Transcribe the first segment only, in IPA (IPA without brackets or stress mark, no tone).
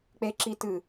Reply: k͡p